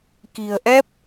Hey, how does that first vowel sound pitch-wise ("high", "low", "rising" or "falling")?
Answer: low